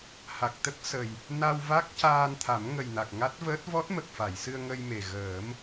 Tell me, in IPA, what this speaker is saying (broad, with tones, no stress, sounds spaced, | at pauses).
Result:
h a˨˩ k̚ t̪ ə˦˥ k̚ s ə˨˩ j | n a˧ w v a˦˥ k̚ c aː˧ n t̪ʰ a˨˩˦ m ŋ ə˨˩ j n a˨˩ k̚ ŋ a˦˥ t̚ v əː˦˥ t̚ v ɔ˦˥ t̚ m ə˨˩ k̚ f a˨˩˨ j s ɨ˧ ə̯ ŋ ə˧ j m e˨˩ ɣ əː˨˩˦ m